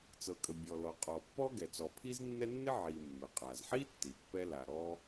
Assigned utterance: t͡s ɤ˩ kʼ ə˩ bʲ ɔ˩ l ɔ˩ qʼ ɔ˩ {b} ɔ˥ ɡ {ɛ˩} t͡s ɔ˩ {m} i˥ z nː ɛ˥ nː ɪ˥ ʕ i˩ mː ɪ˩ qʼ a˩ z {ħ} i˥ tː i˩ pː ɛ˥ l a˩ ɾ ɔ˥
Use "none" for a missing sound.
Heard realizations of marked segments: pː, ɛ˩, pʰ, ħ

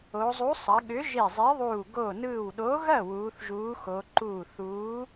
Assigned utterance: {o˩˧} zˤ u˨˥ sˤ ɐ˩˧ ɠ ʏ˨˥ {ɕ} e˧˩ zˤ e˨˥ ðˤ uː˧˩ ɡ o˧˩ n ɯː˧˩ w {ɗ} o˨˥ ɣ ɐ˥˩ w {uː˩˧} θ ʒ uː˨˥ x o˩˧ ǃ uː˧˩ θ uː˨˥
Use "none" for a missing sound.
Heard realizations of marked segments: o˩˧, ʒ, ɗ, uː˩˧

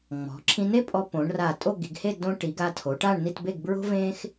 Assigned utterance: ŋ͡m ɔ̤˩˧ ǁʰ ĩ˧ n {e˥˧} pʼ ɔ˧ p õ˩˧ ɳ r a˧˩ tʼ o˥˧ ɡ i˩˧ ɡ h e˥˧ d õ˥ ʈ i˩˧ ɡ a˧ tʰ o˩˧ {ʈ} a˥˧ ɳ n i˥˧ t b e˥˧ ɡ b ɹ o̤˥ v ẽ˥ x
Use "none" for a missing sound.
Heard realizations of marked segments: e˥˧, ʈ

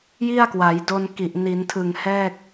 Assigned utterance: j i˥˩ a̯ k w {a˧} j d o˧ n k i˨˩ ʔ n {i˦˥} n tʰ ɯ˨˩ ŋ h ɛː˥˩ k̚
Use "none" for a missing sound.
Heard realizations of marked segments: a˩˦, i˩˦

